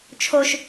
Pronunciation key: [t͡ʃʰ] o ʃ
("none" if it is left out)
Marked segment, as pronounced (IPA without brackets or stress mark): t͡ʃʰ